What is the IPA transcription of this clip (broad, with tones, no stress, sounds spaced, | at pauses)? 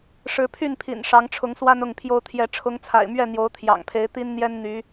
ʂ ɻ̩˨˦ pʰ y˥˨ n pʰ ḭ˨˩ n ʂ ɑ˨˦ ŋ ʈ͡ʂʰ ʊ˨˦ ŋ s w a˦ n ʊ˥˨ ŋ pʰ j o˦ ʊ̯ t̪ʰ j ɛ˨˦ ʈ͡ʂʰ ʊ˨˦ ŋ t͡sʰ a̰˨˩ ɪ̯ m ɥ ɛ˥˨ n̪ j o˨˦ ʊ̯ t̪ʰ j ɑ̰˨˩ ŋ pʰ e˨˦ ɪ̯ t̪ i˦ n n̪ j ɛ˦ n n̪ y˨˦